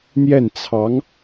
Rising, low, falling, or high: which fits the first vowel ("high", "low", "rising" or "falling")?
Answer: falling